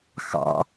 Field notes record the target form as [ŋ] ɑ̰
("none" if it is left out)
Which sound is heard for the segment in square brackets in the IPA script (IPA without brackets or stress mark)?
x